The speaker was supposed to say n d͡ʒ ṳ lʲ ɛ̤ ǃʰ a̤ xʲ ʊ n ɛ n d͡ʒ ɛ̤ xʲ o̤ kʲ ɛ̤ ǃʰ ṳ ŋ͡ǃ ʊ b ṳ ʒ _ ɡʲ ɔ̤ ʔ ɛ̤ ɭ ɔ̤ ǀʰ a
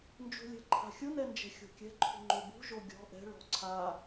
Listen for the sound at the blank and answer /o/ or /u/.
o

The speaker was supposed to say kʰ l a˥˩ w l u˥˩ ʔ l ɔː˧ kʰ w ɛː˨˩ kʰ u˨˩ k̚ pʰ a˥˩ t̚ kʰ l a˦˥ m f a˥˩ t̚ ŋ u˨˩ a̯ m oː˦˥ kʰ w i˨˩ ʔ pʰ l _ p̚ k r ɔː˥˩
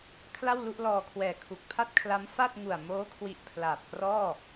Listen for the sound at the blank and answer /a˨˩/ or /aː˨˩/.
aː˨˩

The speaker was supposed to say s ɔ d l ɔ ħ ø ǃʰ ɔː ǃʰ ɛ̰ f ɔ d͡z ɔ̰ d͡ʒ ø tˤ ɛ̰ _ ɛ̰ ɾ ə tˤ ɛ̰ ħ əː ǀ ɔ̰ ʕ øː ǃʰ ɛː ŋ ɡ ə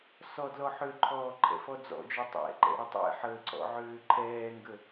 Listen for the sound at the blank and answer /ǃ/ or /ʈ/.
ǃ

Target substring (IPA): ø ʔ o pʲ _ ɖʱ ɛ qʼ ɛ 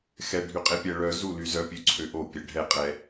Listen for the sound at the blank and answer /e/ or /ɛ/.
ɛ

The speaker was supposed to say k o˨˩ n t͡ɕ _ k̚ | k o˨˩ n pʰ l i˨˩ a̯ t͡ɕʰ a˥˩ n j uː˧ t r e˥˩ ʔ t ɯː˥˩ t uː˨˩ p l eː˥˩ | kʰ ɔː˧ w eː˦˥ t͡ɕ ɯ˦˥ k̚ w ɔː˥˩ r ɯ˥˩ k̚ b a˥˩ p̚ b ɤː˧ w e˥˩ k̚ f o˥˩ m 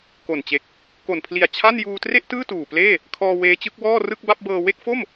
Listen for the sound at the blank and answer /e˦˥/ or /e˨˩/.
e˨˩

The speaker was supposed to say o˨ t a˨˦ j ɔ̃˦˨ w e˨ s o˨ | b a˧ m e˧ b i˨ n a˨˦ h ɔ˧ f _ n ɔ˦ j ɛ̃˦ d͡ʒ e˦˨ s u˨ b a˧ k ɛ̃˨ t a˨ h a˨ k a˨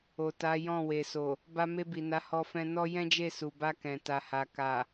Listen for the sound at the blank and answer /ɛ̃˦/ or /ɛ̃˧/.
ɛ̃˧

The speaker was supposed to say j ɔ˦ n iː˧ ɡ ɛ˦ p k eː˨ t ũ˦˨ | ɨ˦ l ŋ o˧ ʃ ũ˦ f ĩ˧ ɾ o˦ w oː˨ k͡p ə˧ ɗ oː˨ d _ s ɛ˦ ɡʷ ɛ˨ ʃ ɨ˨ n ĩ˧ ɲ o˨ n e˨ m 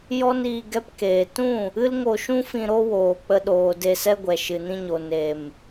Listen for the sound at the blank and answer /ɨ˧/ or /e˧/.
e˧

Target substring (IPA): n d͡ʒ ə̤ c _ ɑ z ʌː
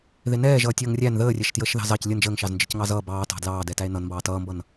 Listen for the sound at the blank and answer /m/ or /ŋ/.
ŋ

